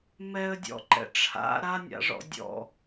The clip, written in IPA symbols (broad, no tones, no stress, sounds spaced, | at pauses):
m ɛ ə̯ dʲ ɔ̰ ǃ ɛ̰ ʈ͡ʂʰ a̰ ɾ a nʲ a̰ ʐ ɔ̰ dʲ ɔ̰